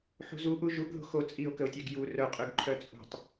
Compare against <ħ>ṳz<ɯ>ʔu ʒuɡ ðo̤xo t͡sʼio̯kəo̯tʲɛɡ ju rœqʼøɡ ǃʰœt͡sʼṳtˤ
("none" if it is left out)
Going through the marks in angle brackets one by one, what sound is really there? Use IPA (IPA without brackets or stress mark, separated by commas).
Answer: ħ, u